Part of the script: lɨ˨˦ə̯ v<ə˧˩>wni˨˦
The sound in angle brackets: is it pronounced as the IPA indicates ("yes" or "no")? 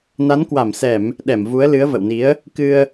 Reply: no